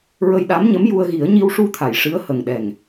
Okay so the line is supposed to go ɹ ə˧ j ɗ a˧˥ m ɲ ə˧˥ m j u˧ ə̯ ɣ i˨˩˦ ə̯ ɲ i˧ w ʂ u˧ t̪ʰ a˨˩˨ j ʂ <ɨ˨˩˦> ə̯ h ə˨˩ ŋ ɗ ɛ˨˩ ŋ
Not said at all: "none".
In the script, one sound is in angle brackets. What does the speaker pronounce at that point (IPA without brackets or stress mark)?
ɨ˧˥